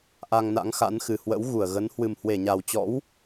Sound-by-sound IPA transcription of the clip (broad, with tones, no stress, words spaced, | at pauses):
ʔa˧ŋna̰˧˥ŋxa̰˧˥nxɨ˨˩ hwə̰˧˥wɣu˧˩ə̯ɣə˨˦n hwɨ˨˩mhwe˧˩ɲa˨˩wt͡ɕɔ̰˧˥w